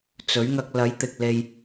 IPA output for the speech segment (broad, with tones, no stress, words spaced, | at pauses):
t͡sɵ˨˥ɥŋɐ˧k̚ lɐ˨˥jt̪ɪ˨k̚ le˧j